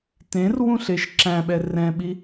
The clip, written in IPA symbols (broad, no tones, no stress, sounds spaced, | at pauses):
t ẽ r w ũ ɬ e ʃ ǁ æ̃ ɓ ɛ r ɛ̃ ɓ i